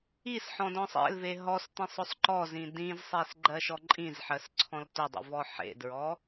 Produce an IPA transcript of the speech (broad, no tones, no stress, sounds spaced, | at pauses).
i s ħ ɔ̃ d ɔ̃ sˤ ḛ l v e ɦ ɔ s t ĩ sˤ ʊ sˤ ǃ ɔ z ĩ d ĩ z sˤ e s ɡ͡ǃ ɜ ʃ ɔ ǃʼ ĩ z ħ ɜ s ǀʰ ɔ̃ l t ʊ dˤ ḭ v ɔ ħ ḛ d ɹ ɔ